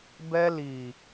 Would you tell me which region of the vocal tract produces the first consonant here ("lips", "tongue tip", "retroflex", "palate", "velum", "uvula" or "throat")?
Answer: lips